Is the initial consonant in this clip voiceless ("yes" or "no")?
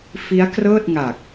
yes